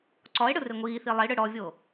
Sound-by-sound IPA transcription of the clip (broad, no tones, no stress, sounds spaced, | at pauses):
ǀ ɔ e̯ ɽ ɯ r e ŋʷ iː θ i lˠ i ɽ ɯ ɽ ɔ vʲ o